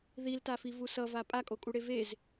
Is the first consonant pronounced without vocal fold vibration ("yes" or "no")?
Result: no